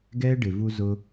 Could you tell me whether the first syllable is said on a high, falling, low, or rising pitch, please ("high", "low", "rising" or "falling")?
high